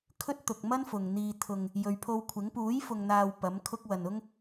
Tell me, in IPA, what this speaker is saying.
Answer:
kʰ ɵ˥ t̚ t̪ ʊ˨ k̚ m ɐ˥ n f ʊ˨ ŋ n̪ iː˧ t̪ʰ ʊ˨ ŋ | j ɵ˨ ɥ pʰ o˧ w kʷʰ ɪ˨˥ ŋ p uː˨˥ j f ʊ˨ ŋ n̪ aː˨ w p ɐ˨˥ m kʰ ʊ˥ k̚ w ɐ˨ n ʊ˥ ŋ

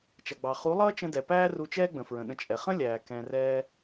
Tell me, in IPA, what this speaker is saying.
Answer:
t͡ʃ ʌ˨ ɡ͡b ɑ˨ χ u˨˦ lˠ ʌː˦ t͡ʃ ə̃˧ d ɛ˨ p æː˦ r u˧ t͡ʃ ɛː˦ ɡ͡b ə̃˨ f ɹ ə̃˨ ɗ ə̃˧ t͡ʃʼ ɛ˨ χ ə̃˦ lʲ æː˨ k ɛ̃˧ r ɛː˦

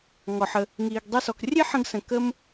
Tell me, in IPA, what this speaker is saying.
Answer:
ŋ ɔ˨ ħ ə˧ | ŋ iː˧ ɡ dˤ i˦ s ɔ˧ k rʲ e˦ ħ ə̃˧ ɡ s ə̃˨ k ə˦ m

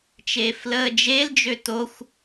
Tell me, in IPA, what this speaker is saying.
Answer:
t͡ʃ eː f l əː d͡ʒ e l d͡ʒ ø t o xʷ

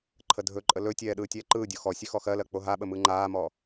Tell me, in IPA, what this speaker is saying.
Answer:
ǃʰ ə dʱ ɵ ǃʼ ə l ɵ tʲ ɛː ɗ ɯː tʲ ɛː ǃ ɯː dʲ o x ɔ sʲ ʉ x ɔ x ɜ l ɜ k͡p o ɦ a ɓ ə m ɯ ŋ͡ǃ aː m ɔ

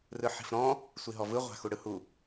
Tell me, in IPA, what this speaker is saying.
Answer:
r ɯ ħ i̤ f ɾ ɔ̃ | sʷ i ɦ ɔ v ɯ ʁʷ a̤ x u ɽ ɯ h u

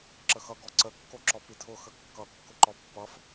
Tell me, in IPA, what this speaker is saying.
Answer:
ǁ ə x ʌ ɡ ɔ ǀ ə kː o ǁ ɔ p i tʰ ʊ x ə kː ʌ kː ʊ ǃ ɔ pː ʌ f

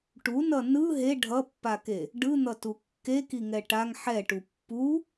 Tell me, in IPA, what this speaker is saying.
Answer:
ʈ u n ʌ n ɯ ɦ e ɖʱ ʌ pː a k e | ɖ ɯ n̪ ʌ t u kː e k i ŋ ɛ ʈ a ŋ ħ ɛ ʈ u pː u

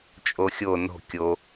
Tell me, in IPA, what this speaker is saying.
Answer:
t͡ʃʼ o xʲ o n o̤ kʲ o

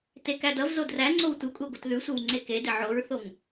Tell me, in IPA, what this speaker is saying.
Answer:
t e k æ d ʌ v z o d r æ ŋ͡ǀ o w tʷ ɪ kʷʼ e ɡʷ ʌ t ð ʉ sʷ e w ŋ͡ǀ e k e d ɪ ʕ o ɹ θ o ŋ

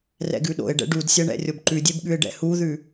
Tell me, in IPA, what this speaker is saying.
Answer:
r ɛ̰ ɡ ʉ ɗ o̰ ɪ̯ ɖ ɛ̰ ɖ u d sʲ ɛ ɳ ɛ̰ rʲ o b ǃ ʉ dʲ e b ɠ ʉ ɪ̯ ɖ ɛ̰ h u ð ʉ

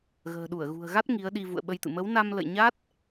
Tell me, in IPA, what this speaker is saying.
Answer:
ɣ ə̤ː˨˩ ɗ u˧˩ ə̯ ɣ ṳ˨˩ ə̯ ɣ a˦˥ t̚ ŋ i˨˦ ə̯ ɗ i˧ v ṵ˧˨ ə̯ ɓ ə˧ j t̪ ɨ̰˧˨ m ə˨˦ w n a˧ m l ə̰˧˨ j ɲ a˦˥ t̚

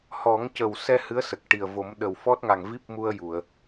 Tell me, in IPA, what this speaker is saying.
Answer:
h ɔ˨˩˦ ŋ c ə˨˩ w s ɛ˧ h ɨ˧˥ ə̯ s ə˨˩ k̚ ʈ i˨˩ ə̯ v o˨˩˦ m ɗ ə˨˩ w f ɔ˦˥ t̚ ŋ a˨˩ ŋ v i˦˥ p̚ m u˧ ə̯ j u˨˩˨ ə̯

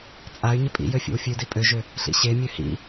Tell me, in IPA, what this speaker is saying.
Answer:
t͡sʼ a y̯ ɲ ɪ pʼ ḭ j ø fʲ ḛ w fʲ ʉ d i pʼ ø ʒ ø | ɬ ḭ ɕ e mʲ ø h ḭ

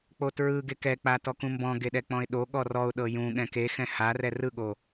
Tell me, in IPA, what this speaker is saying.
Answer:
k͡p o t ɹ ɯ ɡ e k ɛ k͡p a t ɔ k ũ m b ɔ̃ ɡ e ɗ ɛ k͡p ɔ̃ ɪ̯ ɗ o ɠ ɔ r ɔ ʊ̯ ɗ ɤ j ũ ɠ ɛ̃ k e x ɛ̃ h a r ɛ r ɯ ɠ o

